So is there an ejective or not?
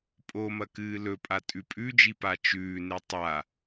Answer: yes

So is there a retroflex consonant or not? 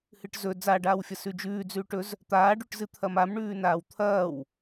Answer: yes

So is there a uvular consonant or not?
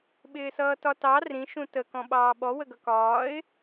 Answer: no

